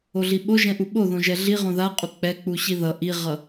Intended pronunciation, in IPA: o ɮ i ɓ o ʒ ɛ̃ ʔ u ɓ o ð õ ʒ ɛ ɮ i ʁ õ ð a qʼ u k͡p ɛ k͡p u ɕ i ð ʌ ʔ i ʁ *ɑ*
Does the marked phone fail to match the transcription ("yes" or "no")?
yes